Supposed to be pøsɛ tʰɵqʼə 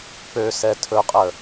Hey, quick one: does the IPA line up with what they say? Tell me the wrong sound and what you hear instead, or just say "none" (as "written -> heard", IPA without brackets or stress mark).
none